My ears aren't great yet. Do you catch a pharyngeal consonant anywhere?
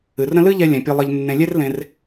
no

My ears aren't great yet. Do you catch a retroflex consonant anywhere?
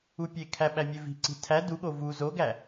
no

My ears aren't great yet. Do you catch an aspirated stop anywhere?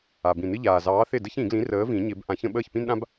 no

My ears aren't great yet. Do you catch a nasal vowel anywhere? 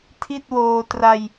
no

